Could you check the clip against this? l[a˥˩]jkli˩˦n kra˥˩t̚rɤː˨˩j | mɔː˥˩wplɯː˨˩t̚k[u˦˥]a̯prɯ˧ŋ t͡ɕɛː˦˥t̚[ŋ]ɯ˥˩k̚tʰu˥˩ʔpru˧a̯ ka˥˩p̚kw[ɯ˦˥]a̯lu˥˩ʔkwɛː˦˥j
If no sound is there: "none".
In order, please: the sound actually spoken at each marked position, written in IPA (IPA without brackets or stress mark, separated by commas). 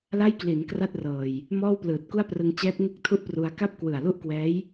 a˥˩, u˥˩, ŋ, ɯ˨˩